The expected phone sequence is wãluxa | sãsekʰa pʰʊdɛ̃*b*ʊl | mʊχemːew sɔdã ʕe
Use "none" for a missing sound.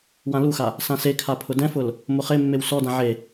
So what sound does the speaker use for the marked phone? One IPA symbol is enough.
f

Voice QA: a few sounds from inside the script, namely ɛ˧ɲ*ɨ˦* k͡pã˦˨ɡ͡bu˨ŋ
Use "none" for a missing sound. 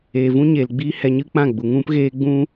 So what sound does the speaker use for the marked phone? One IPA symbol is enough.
ɨ˦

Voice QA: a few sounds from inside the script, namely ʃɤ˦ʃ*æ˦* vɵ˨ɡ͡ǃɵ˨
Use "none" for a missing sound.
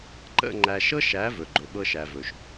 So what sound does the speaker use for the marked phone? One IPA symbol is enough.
æ˨˦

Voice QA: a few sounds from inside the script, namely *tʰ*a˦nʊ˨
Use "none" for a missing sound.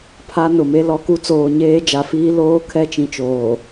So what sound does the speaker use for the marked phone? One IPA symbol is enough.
pʰ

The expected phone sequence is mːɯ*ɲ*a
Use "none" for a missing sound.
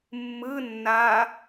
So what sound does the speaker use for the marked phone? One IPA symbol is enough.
nː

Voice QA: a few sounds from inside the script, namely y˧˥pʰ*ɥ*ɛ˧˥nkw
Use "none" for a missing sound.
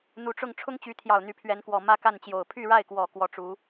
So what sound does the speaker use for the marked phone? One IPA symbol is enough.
ɥ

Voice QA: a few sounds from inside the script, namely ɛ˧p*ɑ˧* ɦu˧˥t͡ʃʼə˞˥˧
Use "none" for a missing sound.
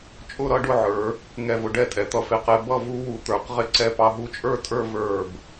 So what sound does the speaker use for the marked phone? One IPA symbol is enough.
ɑ˧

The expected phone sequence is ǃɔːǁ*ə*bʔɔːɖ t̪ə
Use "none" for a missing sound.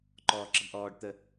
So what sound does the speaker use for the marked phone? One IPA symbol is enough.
ə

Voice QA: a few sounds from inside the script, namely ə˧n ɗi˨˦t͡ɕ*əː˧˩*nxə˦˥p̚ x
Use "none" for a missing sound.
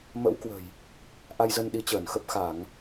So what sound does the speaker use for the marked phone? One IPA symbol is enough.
əː˧˩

